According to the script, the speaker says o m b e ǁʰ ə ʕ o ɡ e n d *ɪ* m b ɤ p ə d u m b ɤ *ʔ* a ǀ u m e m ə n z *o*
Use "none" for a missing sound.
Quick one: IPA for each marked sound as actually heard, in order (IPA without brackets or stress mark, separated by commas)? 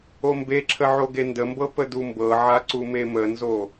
ə, ʕ, o